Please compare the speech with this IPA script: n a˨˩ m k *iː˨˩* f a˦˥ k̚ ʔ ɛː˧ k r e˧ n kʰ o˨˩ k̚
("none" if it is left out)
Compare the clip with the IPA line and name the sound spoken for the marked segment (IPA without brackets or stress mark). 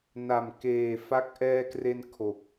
eː˨˩